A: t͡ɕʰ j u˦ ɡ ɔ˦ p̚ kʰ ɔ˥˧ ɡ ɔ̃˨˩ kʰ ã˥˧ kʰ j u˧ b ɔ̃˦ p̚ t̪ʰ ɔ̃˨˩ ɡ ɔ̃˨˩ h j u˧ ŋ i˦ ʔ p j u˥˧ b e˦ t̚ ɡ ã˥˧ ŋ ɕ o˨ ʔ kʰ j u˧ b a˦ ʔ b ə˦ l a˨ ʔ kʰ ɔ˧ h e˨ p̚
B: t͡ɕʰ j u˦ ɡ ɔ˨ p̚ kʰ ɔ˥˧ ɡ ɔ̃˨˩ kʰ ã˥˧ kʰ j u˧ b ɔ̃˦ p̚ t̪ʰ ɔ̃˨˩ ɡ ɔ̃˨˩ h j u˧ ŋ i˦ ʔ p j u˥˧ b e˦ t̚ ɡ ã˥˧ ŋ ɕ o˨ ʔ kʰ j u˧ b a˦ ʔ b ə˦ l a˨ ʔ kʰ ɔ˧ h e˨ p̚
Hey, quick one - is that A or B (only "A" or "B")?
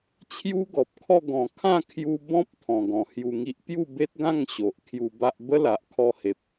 B